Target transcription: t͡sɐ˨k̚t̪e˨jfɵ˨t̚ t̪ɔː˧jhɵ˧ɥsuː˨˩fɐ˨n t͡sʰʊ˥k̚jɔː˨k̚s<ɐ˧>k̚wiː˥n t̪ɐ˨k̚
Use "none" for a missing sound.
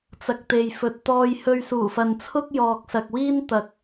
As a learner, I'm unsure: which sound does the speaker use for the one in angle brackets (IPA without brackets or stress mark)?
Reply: ɐ˨